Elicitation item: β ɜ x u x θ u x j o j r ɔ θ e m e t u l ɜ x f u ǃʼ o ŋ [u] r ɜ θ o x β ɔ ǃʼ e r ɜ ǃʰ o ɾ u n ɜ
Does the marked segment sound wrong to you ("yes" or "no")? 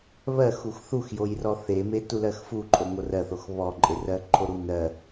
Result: yes